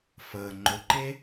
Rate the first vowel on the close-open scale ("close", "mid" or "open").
mid